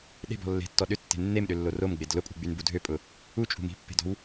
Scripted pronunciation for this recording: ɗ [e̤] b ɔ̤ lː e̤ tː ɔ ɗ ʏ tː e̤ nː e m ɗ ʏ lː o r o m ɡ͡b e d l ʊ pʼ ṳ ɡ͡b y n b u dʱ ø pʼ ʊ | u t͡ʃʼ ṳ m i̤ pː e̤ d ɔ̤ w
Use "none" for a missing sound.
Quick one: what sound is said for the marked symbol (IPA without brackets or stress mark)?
e̤